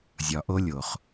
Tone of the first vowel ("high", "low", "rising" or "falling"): low